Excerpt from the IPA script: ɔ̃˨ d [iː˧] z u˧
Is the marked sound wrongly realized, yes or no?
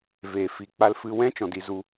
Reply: yes